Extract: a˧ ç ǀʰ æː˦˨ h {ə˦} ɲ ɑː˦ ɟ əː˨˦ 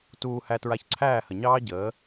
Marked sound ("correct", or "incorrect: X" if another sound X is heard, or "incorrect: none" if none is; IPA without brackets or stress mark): incorrect: ə˨